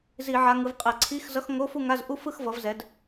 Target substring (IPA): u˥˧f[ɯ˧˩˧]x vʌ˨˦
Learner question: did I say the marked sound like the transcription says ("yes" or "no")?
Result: no